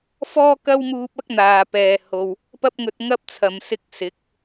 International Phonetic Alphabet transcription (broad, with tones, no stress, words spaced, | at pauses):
fɔː˥kɐ˥wmuː˧p̚ɐ˥k̚ n̪aː˨pɛː˨ ho˨w | pɐ˥p̚ŋɵ˧t̚ŋɐ˥p̚ t͡sʰɐ˨msɪ˧k̚ sɪ˨˥k̚